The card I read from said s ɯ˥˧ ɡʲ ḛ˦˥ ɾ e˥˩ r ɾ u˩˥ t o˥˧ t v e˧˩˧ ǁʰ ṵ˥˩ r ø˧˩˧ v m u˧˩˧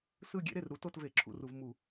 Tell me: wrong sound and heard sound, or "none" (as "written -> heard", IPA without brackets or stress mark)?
ø˧˩˧ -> u˧˩˧